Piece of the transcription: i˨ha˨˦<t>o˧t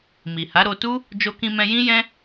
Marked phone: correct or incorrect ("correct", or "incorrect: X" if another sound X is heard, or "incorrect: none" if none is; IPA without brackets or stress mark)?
incorrect: ɾ